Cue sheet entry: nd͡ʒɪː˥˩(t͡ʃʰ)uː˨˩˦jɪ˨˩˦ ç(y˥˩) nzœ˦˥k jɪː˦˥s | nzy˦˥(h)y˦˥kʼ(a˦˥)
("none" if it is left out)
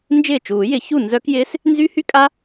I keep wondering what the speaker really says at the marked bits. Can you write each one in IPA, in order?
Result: t͡ʃ, u˥˩, h, a˦˥

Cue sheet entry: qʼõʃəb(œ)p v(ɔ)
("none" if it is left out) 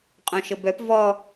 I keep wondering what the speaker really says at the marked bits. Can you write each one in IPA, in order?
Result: œ, ɔ

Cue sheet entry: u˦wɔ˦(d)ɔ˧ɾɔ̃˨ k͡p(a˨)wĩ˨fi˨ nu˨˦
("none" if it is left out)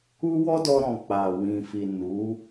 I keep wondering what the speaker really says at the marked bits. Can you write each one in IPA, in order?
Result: d, a˨

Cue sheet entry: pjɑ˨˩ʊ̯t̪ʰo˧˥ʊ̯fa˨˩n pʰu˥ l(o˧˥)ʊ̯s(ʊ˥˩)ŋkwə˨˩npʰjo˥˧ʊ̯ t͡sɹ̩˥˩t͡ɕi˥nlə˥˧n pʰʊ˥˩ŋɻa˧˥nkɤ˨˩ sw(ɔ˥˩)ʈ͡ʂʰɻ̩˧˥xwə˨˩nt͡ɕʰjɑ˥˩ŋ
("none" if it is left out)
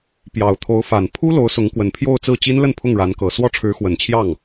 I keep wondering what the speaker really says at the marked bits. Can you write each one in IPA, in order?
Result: o˧˥, ʊ˧˥, ɔ˥˩

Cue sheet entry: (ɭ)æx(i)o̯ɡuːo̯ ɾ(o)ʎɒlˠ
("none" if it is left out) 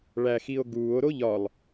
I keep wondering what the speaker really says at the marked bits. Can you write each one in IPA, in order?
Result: ɭ, i, o

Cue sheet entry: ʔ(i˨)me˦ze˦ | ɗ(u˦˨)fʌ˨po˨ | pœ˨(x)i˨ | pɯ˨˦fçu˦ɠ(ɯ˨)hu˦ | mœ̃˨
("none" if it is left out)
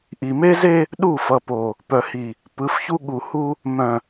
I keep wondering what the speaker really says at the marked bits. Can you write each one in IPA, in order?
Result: i˨, u˦˨, h, u˨

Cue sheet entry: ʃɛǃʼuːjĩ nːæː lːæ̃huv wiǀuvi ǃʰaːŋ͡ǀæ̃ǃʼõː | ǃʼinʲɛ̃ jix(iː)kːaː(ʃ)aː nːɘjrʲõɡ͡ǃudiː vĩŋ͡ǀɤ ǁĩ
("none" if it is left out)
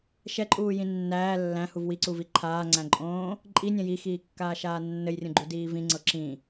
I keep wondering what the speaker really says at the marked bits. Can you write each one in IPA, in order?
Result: iː, ʃ

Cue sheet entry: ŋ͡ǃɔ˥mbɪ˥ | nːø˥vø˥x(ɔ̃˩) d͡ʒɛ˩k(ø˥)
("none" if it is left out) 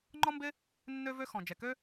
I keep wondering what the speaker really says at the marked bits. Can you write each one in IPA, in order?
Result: ɔ̃˩, ø˥

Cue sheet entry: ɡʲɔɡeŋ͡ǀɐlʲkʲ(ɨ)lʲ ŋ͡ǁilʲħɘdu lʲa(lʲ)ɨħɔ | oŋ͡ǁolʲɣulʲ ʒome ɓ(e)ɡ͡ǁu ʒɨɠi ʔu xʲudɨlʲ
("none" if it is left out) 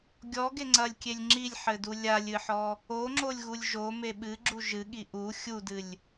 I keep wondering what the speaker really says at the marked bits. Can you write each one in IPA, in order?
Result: e, lʲ, ɨ

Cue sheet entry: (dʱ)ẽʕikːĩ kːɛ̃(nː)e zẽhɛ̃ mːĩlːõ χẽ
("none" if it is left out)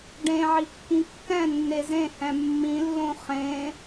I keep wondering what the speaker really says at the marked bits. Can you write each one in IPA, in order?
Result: ɖ, nː

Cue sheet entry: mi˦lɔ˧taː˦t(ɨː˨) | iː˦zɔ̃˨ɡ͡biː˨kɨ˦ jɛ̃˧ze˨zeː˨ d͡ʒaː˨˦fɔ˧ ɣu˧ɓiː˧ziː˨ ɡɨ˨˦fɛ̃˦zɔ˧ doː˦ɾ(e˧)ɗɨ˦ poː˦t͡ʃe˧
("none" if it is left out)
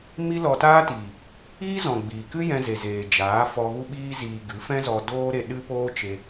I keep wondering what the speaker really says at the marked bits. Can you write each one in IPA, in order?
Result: iː˨, e˧

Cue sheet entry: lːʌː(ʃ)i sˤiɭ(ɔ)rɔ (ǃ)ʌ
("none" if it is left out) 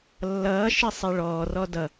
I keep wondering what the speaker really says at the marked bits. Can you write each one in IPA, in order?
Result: ʃ, ɔː, d

